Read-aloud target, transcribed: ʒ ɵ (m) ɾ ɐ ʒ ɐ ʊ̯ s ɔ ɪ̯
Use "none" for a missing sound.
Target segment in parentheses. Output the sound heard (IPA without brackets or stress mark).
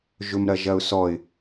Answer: m